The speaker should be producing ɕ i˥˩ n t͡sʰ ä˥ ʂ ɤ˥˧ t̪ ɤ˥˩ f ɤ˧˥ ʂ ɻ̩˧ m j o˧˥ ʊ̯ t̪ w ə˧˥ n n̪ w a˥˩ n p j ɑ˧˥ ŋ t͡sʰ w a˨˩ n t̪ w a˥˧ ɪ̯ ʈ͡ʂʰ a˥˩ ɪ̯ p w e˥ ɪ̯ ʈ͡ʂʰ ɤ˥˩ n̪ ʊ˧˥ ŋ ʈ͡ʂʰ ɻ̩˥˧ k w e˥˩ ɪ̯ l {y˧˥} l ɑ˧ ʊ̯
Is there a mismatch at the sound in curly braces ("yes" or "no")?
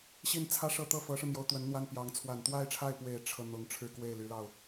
no